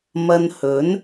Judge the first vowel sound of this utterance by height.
low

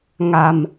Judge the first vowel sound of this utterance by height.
low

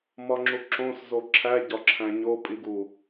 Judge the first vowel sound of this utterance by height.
low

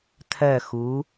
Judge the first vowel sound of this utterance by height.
mid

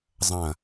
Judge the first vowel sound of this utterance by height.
low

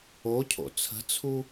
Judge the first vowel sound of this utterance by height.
mid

